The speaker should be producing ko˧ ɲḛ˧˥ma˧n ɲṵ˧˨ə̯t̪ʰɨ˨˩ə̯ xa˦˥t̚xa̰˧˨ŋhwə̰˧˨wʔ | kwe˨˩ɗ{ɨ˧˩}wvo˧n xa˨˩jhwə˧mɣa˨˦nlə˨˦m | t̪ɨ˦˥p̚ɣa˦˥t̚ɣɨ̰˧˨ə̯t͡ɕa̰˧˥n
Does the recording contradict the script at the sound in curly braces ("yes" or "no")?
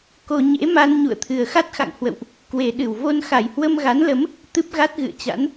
no